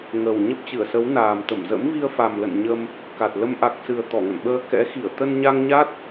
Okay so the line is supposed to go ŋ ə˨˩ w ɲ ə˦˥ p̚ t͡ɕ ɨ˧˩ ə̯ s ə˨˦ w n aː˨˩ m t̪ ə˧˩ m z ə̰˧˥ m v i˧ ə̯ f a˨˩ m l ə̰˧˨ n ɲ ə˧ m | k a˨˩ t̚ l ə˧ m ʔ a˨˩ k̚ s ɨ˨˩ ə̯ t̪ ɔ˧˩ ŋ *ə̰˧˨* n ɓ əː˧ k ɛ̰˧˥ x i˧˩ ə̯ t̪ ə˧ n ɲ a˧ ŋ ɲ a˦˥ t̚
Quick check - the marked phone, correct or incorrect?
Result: correct